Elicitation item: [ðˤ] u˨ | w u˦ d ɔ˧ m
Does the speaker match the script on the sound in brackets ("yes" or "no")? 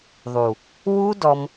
yes